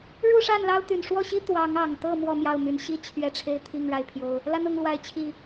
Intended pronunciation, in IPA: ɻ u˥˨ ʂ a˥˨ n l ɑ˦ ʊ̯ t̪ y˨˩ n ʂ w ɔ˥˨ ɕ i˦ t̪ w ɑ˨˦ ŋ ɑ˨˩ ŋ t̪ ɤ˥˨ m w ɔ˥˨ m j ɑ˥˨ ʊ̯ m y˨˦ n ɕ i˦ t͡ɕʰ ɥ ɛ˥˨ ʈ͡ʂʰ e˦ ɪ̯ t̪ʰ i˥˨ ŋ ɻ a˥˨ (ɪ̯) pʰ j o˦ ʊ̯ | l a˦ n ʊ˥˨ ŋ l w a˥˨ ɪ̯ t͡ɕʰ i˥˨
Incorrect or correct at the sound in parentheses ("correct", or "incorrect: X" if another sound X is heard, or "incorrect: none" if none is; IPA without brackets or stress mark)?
correct